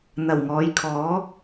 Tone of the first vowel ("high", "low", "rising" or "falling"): low